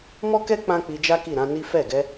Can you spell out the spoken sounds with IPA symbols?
m ɔ˦ k ɛ˦ k͡p ã˦ k͡p i˧ d͡ʒ a˦ k i˦˨ ɾ ã˨˦ n i˦ f ɛ˦˨ ɡ ɛ˧

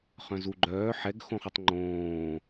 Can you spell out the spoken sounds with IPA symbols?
χ œ̃ z u ɡ͡ǃ œː ħ ɛ ɡ x õ χ u tˤ ŋ͡ǃ õː

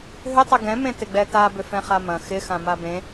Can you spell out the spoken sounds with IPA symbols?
ɦ ʏ tˤ ɪ ɡ ɛ̃ m ẽ t ɪ ɡ͡b ɛ t a b ʏ f ɛ̃ χ a m ɐ̃ x ɪ x ã m a b ẽ

